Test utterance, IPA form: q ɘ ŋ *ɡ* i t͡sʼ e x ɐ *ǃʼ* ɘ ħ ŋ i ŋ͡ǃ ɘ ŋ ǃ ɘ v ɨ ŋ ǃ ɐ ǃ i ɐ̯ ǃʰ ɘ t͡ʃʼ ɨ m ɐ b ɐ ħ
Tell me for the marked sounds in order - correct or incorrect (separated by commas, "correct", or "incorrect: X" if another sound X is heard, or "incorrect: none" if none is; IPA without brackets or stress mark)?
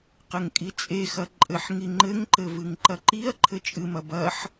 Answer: incorrect: kʼ, correct